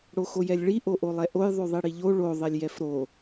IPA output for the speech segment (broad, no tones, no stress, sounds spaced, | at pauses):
ɽ o x o j ɛ lʲ ɭ i ʔ o ʔ o lˠ ɛ ʔ o j ðˤ ʉ ðˤ i ɽ i ʎ o ɭ o ðˤ ɛ lʲ j ɛ f ɾ o